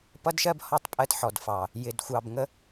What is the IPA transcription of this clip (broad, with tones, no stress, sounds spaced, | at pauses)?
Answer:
p ʌ˦ d ʃ ɜ˦ b h ɔ˦˨ tˤ pʼ ɜ˦ t ħ ɔ˨ d f ɑ˨ | j ɪ˨ d xʷ ɑ˨ b ŋ ə˦